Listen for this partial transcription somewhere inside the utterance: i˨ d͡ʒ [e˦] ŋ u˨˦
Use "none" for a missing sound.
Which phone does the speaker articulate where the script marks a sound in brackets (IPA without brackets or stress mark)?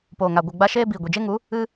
e˦